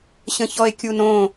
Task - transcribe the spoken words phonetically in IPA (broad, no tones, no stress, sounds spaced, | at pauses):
ɕ ə̃ ç ɔ e̯ kʲ u n õ